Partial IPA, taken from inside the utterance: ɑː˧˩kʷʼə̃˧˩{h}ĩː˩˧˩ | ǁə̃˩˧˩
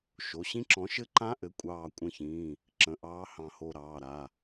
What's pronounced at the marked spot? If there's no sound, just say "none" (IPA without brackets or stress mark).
ç